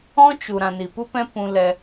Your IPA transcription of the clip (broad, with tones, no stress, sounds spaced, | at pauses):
ɔ̃˦ t͡ʃ u˨ ɾ ã˨ n i˨ p u˦ p ɛ̃˦ p ũ˧ l ɛ˧